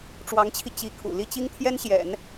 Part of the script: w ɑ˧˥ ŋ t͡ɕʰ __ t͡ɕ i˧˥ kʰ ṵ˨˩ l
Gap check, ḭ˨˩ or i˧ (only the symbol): i˧